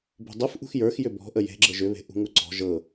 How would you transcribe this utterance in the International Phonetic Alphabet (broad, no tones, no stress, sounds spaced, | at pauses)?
b ṳ dˤ ɯ f ʔ ṳ x j ə˞ x j ʏ b ɔ̤ ʔ ə j e̤ ɡ͡ǁ ɤ ʒ ʏ β e̤ ʔ ṳ ŋ u ǀ ɔ̤ ʒ ɤ